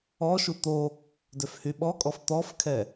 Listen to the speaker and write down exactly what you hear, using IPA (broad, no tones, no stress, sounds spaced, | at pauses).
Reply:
ɔ ʃ u t̪ o | d ø f h y ɓ ɔ kʼ ɔ f t̪ ɔ f kʰ ɛ